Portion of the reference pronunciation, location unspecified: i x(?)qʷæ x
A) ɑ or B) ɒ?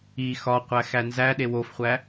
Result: B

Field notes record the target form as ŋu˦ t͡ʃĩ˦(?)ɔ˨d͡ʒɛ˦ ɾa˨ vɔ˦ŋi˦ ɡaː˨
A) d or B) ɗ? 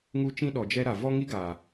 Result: B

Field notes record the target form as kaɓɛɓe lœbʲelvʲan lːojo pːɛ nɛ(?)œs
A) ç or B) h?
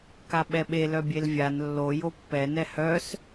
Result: B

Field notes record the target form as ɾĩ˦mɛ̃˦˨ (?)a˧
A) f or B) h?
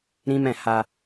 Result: B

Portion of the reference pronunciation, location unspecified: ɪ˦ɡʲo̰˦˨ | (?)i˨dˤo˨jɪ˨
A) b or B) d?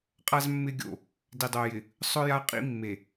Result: B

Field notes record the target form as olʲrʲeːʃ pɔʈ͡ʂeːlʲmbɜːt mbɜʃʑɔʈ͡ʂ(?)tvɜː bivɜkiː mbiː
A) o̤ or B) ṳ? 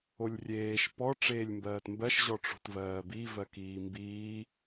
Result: A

